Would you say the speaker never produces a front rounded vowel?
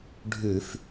yes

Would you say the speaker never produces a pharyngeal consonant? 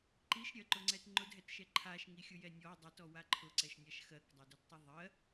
yes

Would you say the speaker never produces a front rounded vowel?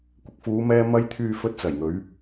no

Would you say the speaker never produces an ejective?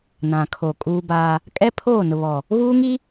no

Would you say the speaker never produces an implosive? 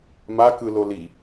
yes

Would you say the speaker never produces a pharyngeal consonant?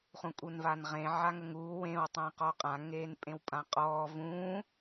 no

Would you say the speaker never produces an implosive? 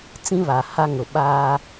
no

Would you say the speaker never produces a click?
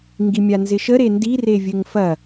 yes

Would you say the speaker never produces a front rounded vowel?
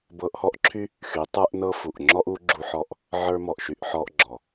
no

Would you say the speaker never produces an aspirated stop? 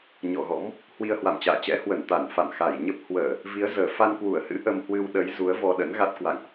yes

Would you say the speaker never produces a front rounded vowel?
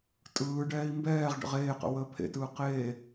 yes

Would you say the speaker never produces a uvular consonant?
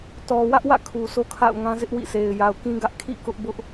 yes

